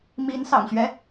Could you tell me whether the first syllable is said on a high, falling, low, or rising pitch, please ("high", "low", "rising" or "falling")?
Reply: rising